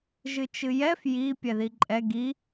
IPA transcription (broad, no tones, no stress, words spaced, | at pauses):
ʒɨt͡ʃɨjɛf ji pʲɛðiǃʼɛ ɡi